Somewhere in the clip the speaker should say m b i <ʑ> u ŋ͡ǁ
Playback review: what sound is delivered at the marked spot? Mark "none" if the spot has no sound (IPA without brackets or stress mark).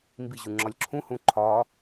ʑ